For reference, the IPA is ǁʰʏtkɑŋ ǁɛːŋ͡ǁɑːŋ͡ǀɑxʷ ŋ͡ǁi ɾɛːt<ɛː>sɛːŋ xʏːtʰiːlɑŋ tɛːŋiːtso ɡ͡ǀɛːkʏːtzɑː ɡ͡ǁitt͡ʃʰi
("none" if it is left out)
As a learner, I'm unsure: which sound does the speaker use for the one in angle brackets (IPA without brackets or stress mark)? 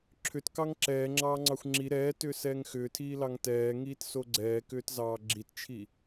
ʏː